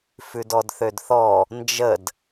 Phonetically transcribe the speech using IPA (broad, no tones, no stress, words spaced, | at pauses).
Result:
fʉdɔdθødθɔ | nd͡ʒəd